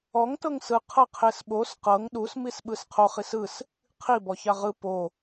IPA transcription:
ɔŋtɤŋ sɯ qʰɤqʰesɓos qɤŋ ɗusmisɓɯs qʰoχis ɯs | qʰibɔ çaʁɯ po

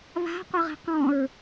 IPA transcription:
βa̤ qʷeʁi̤qɔ̃ɹ

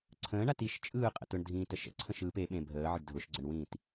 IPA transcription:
ǀʰə̃ːɳat iʃ t͡ʃʼɯːqʼə̰ tʊɳdʱĩːtə ʃə̰ ǀʰə̃ʃɯːp e ɓẽbʱəːʕəɖ dʱʊʃɡ͡ǀəɳwĩːt

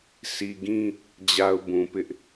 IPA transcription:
sʰi˨ ɡĩ˦ | d͡ʑa˨ʊ̯ bũ˨pɪ˦ʔ

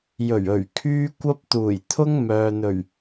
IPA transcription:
jɵ˨˩ɥ ɵ˨˩ɥ kʰyː˥kʷɐ˥p̚ t̪uː˨˩jt̪ʰʊ˥ŋ mœː˨n̪ɵ˨˩ɥ

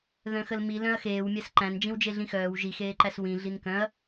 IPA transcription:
ðœ̃xəlmi lœ̃ɐ̯xeːwmʲæs ǃæ̃n d͡ʒĩwd͡ʒeɮĩxœːw ʒixeːǃæs wĩ ɮinkœ̃ɐ̯

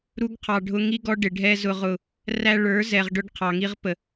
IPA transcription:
ɾu˦ɡqʰɑ˨ɖʱʊ˦ ŋi˦ɡɔ˦ ɖɪ˨ɖʱɛ˦ zʊ˦ʁʊ˦˨ | ræ˦ ɭə˞˨˦ zɛ˨ʁɖʊ˦ɖ qʰɑ˨ŋi˦ʁpə˨

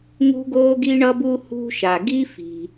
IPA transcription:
ŋṳ˥ɡoː˥ɡi˥ ɳʌ˥bu˥ hṳ˥ʃa˩ ɡi˥fi̤˩

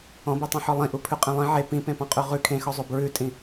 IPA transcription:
ɔ̃bitˤĩħɔ lˠĩʔupʰʉqʼẽ lˠĩ ʕe pĩpẽpɔ̃qʼʉ ʁʉ kʰẽxɔzˤo bɹʉtʼĩ

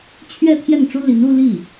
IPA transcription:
t͡ɕʰɥɛ˥˧ t̪ʰjɛ˥˩nʈ͡ʂu˥li˧˥n u˥˧ li˥˩

